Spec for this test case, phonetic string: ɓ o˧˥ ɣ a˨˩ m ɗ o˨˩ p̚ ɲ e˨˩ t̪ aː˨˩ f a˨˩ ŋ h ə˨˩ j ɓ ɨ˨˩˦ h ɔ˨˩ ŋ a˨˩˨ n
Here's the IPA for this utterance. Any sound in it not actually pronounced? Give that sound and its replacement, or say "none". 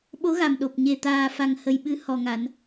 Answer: none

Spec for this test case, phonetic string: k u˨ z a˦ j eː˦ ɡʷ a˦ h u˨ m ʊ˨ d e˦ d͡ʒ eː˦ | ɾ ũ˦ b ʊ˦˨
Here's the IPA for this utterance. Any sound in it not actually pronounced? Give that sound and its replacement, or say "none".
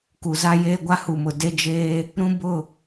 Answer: none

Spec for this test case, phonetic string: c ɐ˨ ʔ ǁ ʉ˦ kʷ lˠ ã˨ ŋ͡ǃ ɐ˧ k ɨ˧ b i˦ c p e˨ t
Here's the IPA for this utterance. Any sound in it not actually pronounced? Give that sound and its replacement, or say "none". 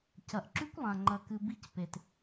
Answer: none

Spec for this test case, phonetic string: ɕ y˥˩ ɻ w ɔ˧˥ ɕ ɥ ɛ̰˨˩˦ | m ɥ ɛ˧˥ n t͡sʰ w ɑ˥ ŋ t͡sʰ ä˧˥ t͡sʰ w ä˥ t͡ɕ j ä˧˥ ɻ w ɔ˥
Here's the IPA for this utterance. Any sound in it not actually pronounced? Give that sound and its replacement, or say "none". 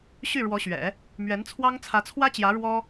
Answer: none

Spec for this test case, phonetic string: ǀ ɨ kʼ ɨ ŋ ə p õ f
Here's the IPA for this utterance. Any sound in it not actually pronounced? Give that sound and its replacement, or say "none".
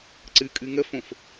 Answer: p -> f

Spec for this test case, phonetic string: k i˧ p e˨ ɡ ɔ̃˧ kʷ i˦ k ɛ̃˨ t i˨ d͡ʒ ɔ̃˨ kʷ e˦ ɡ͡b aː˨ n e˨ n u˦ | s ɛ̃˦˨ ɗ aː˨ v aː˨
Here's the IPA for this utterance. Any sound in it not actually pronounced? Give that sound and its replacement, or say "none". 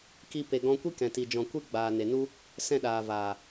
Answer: none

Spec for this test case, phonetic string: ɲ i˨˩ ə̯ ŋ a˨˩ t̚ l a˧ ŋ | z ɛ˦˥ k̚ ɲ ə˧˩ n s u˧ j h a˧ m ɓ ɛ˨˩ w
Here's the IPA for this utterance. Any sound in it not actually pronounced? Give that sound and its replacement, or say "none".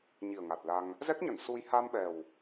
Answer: none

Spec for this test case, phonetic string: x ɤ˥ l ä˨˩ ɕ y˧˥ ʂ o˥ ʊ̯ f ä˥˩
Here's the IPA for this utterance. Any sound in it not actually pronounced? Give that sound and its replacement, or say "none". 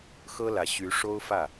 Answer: none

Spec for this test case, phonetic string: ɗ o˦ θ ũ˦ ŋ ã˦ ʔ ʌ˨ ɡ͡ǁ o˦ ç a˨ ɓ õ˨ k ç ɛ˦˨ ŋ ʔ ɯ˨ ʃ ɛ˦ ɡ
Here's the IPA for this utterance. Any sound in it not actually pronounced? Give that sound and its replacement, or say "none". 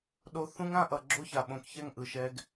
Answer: none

